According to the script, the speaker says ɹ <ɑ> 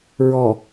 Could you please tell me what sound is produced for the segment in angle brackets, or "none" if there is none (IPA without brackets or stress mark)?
ɔ